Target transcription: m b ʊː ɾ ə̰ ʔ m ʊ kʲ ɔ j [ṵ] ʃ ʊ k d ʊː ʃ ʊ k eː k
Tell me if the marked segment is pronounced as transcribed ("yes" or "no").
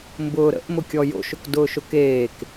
no